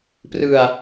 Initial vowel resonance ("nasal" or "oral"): oral